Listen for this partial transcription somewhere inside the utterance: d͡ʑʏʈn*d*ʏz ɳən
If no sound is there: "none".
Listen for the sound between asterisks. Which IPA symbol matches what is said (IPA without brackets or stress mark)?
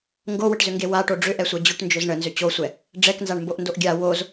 d͡ʒ